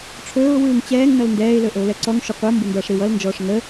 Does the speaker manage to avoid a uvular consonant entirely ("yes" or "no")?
no